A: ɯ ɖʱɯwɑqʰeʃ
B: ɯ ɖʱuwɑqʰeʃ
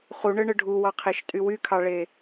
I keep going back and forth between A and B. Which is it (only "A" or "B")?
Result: B